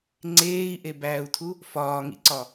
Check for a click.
present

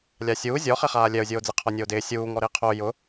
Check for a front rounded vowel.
absent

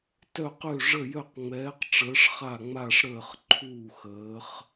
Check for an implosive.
absent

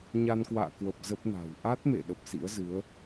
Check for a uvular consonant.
absent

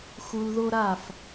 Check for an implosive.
absent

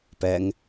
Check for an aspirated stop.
absent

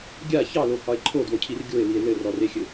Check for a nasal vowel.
absent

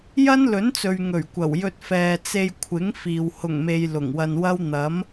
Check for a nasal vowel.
absent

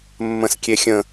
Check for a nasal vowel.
present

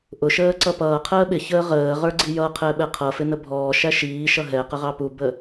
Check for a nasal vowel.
absent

